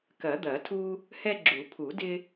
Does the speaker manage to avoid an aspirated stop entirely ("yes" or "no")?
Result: no